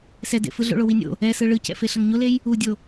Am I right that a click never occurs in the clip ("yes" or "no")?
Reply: yes